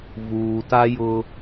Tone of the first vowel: low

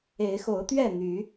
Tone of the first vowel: rising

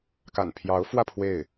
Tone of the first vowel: low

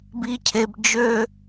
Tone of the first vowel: high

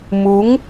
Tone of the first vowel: rising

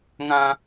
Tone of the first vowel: high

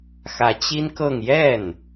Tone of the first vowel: rising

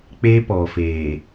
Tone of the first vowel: high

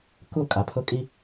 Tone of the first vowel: falling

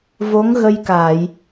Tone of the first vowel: rising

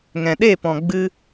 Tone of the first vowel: low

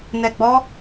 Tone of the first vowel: low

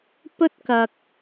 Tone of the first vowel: high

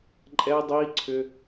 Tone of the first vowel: high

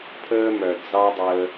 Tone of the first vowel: high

